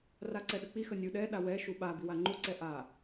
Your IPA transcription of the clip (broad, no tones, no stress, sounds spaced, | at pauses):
r a ǀ ɛ ɗ ə k͡p i x ə nʲ u ɗ ɛ ɗ a w ɛ ʃ u ɓ a b i w a ŋ͡ǃ u ǀ ɛ ʔ a